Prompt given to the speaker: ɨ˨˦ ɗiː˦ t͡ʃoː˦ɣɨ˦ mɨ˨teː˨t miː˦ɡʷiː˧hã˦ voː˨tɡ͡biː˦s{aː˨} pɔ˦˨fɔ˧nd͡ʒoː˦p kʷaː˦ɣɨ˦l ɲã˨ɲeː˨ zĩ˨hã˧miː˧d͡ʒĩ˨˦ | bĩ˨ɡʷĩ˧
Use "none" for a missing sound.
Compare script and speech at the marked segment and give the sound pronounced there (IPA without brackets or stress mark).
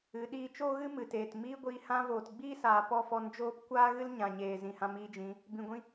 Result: aː˨